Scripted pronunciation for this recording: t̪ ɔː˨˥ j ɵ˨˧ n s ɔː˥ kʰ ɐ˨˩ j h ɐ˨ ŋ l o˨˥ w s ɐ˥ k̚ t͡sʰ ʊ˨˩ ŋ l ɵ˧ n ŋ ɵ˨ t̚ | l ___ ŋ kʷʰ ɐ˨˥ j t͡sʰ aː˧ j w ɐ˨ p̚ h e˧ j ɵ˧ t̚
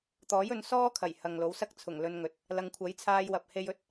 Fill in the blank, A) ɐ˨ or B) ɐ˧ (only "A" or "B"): A